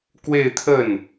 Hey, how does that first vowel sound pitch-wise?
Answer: falling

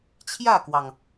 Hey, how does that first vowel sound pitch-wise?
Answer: falling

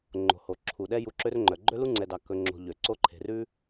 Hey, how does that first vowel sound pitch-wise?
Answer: low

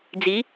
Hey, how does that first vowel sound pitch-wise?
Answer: rising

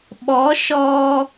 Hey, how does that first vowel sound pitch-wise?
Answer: rising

